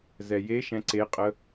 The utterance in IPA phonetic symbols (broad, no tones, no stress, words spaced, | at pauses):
zɛjeʃɛ̃ ǀeqʼə